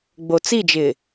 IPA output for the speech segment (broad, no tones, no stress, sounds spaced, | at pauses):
ɡ͡b o t͡s i d͡ʒ ɪː